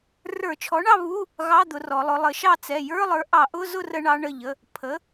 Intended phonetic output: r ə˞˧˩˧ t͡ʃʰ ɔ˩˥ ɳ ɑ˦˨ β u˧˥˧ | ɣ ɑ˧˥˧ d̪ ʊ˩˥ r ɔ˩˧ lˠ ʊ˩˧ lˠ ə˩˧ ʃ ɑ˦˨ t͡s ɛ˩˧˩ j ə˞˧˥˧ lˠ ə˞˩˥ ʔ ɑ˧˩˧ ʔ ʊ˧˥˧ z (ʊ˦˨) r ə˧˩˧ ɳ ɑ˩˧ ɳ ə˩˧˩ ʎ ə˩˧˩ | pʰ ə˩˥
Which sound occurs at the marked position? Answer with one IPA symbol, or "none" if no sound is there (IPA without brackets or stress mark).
ʊ˦˨